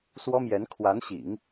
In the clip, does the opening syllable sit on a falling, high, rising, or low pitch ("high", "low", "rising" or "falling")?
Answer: high